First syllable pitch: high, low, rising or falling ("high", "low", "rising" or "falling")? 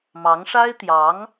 rising